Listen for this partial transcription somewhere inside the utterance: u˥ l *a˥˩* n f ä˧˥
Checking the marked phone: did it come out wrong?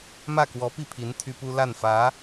no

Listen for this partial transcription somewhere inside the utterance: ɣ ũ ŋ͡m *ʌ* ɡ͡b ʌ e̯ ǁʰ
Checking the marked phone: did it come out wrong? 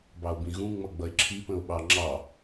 no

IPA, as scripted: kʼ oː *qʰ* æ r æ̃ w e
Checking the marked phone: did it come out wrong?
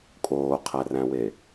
no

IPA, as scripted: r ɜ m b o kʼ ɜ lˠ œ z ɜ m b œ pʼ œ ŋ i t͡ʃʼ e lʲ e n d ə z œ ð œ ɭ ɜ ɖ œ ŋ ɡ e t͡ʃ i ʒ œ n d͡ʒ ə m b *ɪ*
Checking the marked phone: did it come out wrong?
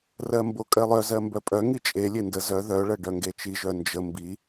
yes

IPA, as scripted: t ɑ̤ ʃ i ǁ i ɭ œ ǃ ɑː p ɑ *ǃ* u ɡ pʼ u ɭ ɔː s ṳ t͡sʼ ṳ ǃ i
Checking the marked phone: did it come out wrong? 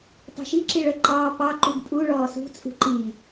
no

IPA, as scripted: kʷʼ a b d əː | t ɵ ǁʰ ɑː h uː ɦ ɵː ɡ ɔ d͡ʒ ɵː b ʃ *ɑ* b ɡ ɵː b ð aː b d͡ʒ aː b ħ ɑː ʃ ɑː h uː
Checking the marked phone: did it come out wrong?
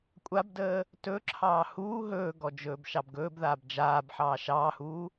no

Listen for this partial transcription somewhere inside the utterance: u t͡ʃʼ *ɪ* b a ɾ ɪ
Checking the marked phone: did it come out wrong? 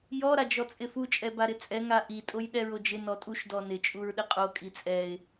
yes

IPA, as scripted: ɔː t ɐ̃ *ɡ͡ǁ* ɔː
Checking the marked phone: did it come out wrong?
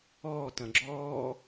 no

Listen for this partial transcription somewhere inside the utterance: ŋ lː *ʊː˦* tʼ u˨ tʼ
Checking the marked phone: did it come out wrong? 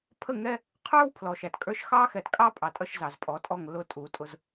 yes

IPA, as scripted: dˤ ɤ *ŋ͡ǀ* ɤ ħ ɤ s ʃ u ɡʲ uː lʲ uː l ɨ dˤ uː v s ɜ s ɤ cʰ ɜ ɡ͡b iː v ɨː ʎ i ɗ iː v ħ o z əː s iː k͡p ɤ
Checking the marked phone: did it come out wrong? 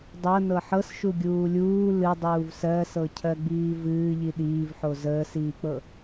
yes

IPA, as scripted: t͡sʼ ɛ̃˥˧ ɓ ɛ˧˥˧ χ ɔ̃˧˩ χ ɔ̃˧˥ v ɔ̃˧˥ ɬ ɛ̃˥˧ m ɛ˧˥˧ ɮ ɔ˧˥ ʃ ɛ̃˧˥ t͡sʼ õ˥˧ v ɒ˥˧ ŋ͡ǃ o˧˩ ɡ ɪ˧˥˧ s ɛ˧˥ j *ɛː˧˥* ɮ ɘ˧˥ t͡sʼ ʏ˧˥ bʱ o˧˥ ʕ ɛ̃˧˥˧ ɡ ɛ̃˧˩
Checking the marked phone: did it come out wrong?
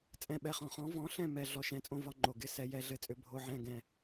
yes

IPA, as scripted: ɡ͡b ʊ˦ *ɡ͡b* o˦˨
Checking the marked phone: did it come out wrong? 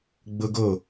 yes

